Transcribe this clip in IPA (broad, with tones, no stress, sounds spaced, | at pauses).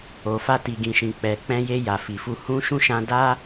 o˨ f a˧ t i˨ ɡ ĩ˨ ʃ ĩ˨ k͡p ɛ˨ k͡p ɛ̃˧ j e˧ j a˨ f i˨ f u˧ h ũ˧ ʃ ũ˦ ʃ ã˧ d a˦